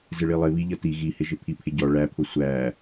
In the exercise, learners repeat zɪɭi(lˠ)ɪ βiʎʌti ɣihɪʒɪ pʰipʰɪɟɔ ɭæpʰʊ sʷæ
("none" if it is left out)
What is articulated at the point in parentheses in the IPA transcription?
lˠ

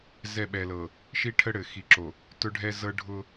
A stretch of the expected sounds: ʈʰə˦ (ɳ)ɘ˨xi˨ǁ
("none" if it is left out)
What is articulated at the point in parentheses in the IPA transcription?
ɽ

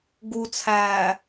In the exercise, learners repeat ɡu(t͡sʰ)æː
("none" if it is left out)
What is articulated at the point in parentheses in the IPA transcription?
t͡sʰ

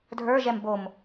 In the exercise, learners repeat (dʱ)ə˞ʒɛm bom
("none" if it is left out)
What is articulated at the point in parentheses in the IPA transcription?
dʱ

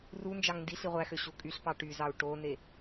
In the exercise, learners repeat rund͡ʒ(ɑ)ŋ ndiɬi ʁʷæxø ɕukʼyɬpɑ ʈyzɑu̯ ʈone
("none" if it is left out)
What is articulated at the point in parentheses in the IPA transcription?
ɑ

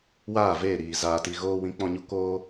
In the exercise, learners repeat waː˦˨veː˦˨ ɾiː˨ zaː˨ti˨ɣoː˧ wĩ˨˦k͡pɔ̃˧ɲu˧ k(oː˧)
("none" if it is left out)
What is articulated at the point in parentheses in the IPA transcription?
oː˧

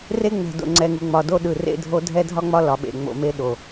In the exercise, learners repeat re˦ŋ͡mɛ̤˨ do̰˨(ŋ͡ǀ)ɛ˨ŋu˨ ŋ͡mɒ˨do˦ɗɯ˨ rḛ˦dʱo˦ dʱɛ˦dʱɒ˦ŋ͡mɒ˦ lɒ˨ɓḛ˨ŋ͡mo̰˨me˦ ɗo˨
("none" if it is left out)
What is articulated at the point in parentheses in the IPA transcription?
ŋ͡ǀ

